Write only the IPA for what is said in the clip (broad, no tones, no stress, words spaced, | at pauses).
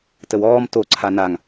təwɔːm to ǀʰanaŋ